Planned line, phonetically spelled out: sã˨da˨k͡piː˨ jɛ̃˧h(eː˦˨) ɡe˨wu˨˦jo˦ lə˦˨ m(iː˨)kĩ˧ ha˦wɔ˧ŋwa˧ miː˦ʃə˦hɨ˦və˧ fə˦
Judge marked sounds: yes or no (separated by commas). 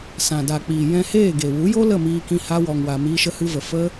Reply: yes, no